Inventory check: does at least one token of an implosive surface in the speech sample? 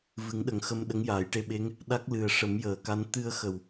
yes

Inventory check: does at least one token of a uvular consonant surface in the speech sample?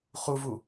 yes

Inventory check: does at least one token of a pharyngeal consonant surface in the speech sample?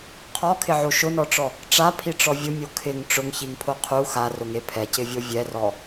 yes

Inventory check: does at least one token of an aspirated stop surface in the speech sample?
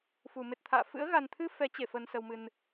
yes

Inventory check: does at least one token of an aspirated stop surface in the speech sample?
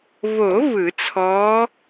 yes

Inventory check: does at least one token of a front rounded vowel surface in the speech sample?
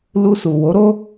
no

